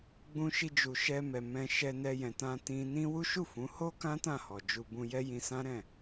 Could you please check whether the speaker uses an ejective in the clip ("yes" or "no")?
no